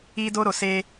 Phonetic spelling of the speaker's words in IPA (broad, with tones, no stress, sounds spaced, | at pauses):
i˦ d o˦ ɾ o˨ s e˦